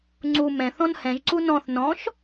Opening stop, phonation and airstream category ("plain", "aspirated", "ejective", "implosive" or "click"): click